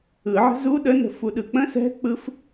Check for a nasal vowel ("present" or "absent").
present